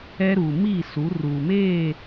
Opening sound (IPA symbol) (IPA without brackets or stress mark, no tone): ɛ